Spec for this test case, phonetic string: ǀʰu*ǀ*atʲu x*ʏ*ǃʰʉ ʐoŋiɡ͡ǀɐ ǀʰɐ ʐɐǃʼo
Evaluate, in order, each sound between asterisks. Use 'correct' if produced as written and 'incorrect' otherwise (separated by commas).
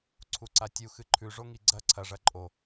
correct, incorrect